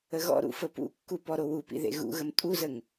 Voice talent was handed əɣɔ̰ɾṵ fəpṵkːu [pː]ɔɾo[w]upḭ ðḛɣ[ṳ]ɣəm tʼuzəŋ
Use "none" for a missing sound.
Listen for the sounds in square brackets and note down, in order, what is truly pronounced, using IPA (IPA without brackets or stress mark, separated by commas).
p, w, ṵ